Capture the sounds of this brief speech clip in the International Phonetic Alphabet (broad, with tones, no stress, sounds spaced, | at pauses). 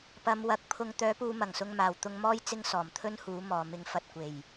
p ɐ˨˧ m w ɐ˨˥ k̚ pʰ ʊ˧ ŋ t̪ œː˨˥ p uː˨ m ɐ˨˩ ŋ s ʊ˨ ŋ m aː˨˩ w t̪ ʊ˧ ŋ m ɔː˥ j t͡s ɪ˥ ŋ s ɔː˨˩ m t̪ʰ ɵ˥ n h uː˨˥ m ɔː˨˩ m ɪ˨˥ ŋ f ɐ˨ t̚ kʷ e˨˩ j